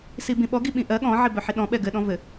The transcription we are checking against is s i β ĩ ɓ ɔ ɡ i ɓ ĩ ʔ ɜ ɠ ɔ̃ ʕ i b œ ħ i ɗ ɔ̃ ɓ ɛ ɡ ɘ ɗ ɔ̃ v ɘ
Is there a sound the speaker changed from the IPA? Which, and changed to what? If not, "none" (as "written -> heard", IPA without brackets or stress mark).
β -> b